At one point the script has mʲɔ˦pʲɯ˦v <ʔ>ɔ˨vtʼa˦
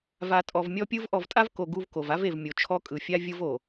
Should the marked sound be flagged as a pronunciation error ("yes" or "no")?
no